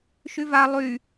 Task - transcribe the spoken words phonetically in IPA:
ʃ y v a lˠ y

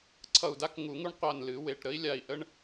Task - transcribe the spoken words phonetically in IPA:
ǀʰ ʌ˧˩ u̯ d a˥ k ŋ u˨˩˦ ŋ u˥ ɳ qʷ a˧˩ n l ɨ˨˩˦ w e˩˧˩ ʈ ɾ ə˥ i̯ lʲ a˧˩ i̯ ʔ ə˥ ɳ

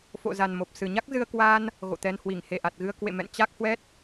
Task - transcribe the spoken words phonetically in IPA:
f o̰˧˨ z a˨˩ n m o˨˩ p̚ s ɨ˨˩ ɲ a˦˥ k̚ z ɨ˧ ə̯ k w aː˧ n | ɣ o̰˧˨ t̪ ɛ˧ n h w i˧˩ ŋ h e˧˩ ʔ a˨˩ t̚ ɣ ɨ˧ ə̯ k w ḛ˧˨ m ɛ̰˧˨ n t͡ɕ a˦˥ k̚ h w ɛ˦˥ t̚

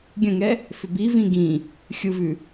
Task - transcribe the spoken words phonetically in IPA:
ɡʲ ə̃ ŋ ɛ | f ʏ b i v ĩ ɡ ĩ | xʲ ɯ v ʉ

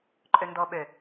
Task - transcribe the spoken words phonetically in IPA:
ǃʼ ø n d ɔ ɓ ø

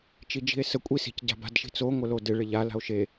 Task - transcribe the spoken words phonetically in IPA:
t͡ʃ i d͡ʒ i̤ e̯ s ə kʷʼ i s i̤ c ɟ a̤ b a̤ d ʃ i̤ t͡s o ŋʷ ə l o d ɪ ɭ ɪ ʎ a l a̤ o̯ ʃ e

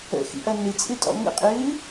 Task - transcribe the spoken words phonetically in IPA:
ə̰ x ḭ ʔ ɐ n ɨ t͡sʼ ɨ tʼ ɔ̰ ŋ ə̰ qʼ ɨː

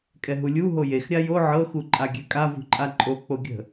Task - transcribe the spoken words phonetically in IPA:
kʼ ɛ ɦ u lʲ u ɦ o j e x ɾʲ a j o ʕ ɤ x u ǃʼ a ɡʲ ɛ kʼ a v ṳ ǃʼ a ǃʼ o k͡p o ɡʲ ə̤

